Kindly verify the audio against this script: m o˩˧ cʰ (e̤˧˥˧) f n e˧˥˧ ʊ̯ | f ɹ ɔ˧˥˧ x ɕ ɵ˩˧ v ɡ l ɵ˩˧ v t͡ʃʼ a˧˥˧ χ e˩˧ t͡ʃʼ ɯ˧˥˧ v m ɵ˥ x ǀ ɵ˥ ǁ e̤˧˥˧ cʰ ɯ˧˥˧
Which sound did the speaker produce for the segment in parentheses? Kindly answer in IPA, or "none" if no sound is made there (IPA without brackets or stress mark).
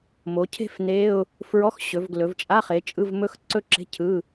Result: e̤˥